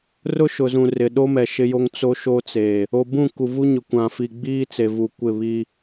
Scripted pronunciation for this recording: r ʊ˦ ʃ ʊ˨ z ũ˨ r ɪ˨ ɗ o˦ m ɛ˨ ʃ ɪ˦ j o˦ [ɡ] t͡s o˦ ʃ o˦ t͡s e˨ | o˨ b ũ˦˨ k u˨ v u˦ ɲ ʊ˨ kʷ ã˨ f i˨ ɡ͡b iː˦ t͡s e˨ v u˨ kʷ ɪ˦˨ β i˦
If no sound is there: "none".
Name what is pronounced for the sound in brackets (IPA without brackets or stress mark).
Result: ŋ